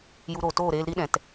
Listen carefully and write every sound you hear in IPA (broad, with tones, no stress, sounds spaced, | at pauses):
j u˧ ɾ oː˨ t oː˦˨ ɾ eː˧ l ɾ i˦ ɗ ɛ̃˨ t